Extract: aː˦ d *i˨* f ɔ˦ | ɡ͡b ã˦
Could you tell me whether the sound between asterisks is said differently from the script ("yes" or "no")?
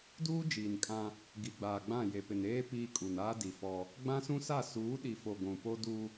no